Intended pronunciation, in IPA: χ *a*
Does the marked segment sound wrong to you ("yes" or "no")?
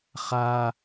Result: no